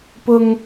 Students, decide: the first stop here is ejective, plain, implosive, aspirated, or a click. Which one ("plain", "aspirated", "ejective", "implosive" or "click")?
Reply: plain